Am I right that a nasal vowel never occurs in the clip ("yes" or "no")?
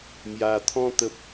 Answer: no